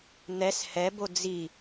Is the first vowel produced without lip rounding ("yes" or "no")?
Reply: yes